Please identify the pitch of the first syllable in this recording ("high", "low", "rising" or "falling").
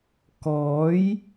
rising